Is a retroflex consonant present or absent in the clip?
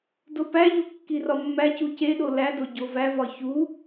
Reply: absent